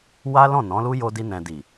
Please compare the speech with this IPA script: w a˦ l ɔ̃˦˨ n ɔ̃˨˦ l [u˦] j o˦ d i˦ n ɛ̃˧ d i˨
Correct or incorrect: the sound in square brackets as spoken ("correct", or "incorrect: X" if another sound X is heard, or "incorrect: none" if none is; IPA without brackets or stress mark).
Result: correct